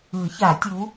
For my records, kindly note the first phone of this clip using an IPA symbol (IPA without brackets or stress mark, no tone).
ɯ